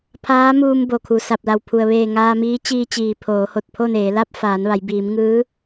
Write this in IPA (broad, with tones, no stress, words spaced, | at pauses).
pʰaː˧˥muː˧m bo˩kʰu˩sa˧˩p̚la˧˩w pʰu˩ə̯ʋeː˧˩ ŋaː˧miː˧˥t͡ɕiː˧t͡ɕiː˩ pʰoː˩˧ho˧˩t̚pʰo˥˨neː˩˧ la˥˨p̚faː˩˧nʋa˩˧j biː˩˧mŋɯː˧˥